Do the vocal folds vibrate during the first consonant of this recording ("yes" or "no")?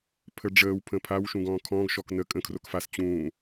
no